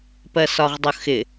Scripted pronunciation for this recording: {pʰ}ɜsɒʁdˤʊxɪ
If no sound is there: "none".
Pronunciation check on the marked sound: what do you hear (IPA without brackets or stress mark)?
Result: p